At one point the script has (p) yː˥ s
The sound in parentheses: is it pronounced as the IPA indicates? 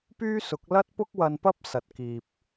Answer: yes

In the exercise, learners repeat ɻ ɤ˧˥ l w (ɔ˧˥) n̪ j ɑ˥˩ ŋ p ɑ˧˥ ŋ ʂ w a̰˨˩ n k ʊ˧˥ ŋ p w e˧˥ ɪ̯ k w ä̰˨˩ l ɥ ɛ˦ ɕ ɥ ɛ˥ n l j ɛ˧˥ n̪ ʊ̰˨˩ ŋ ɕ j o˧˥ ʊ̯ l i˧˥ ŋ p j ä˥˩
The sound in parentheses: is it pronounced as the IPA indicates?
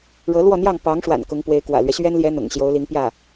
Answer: no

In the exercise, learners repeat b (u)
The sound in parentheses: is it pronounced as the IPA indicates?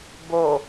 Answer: no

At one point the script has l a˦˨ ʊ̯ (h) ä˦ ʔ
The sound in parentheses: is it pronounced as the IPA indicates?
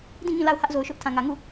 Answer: yes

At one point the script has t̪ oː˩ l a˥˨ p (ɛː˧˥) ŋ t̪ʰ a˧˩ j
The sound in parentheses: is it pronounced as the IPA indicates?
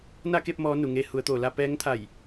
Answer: yes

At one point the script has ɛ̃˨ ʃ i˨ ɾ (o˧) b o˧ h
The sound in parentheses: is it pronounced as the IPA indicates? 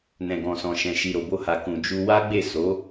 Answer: no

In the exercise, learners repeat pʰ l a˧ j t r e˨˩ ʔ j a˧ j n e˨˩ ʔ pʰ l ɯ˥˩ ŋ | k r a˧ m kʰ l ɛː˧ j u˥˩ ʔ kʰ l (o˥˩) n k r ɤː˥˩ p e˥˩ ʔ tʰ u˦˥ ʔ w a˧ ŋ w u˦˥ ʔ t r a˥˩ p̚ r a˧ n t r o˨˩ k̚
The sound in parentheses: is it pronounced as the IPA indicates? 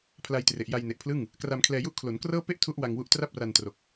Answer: no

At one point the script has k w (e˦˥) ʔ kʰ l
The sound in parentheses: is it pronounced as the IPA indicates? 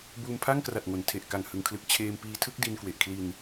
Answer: no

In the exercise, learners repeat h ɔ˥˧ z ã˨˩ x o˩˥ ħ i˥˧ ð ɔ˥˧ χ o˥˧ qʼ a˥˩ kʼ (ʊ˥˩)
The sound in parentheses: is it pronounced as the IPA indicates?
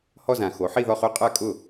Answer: yes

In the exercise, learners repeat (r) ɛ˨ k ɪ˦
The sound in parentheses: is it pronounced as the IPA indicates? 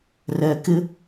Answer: yes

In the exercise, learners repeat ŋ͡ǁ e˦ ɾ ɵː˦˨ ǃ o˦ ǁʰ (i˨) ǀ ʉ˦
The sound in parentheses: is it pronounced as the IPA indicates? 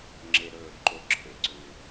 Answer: no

